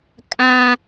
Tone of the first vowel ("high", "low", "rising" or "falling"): high